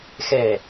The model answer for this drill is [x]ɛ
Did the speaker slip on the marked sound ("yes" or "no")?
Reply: no